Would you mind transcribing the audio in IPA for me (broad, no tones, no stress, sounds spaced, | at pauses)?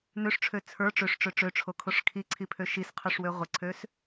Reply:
n ø ʂ ʈ͡ʂʰ ø t͡sʰ ə˞ ʈ͡ʂ ø ʂ ʈ͡ʂ ø ʈ͡ʂ ø ʈ͡ʂʰ o kʰ o ʂ kʰ i ǀʰ i pʰ ø ʃ i s qʰ ø ʂ w ø ʁʷ ə ǀʰ ø s